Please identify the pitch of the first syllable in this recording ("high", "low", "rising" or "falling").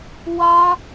high